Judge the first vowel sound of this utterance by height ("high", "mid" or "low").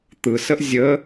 high